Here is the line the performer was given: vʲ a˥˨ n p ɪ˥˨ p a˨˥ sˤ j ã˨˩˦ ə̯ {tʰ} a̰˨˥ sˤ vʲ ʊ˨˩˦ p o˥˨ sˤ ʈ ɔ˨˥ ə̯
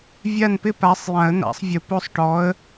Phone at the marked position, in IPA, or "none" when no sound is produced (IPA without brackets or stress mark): n̪